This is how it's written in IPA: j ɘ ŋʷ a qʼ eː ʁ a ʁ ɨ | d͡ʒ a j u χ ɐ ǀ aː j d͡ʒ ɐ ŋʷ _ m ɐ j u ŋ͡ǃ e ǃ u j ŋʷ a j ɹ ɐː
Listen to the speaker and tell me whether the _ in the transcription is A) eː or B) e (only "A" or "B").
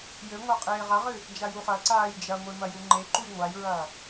B